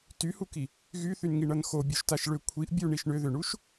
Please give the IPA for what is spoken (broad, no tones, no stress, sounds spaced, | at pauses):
t y h u k i | ɣ y θ y n ŋ i ɳ ʌ n x o bʲ o ʃ t a ʃ ɭ ʏ kʷʰ i ʔ bʲ u ɳ i ʃ ɳ ʏ ð ʏ ɳ u ʃ